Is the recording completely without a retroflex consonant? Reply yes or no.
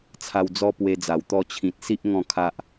yes